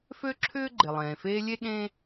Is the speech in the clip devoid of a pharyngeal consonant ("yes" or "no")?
yes